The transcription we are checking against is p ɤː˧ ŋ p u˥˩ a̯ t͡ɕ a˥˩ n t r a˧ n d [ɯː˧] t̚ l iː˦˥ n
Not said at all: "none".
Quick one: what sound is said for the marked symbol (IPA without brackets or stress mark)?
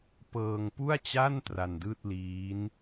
ɯː˥˩